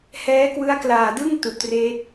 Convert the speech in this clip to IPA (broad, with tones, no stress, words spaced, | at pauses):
hɛː˦˥kwɯ˦˥a̯klaː˨˩dɯ˥˩ŋ tu˨˩ʔtreː˦˥t̚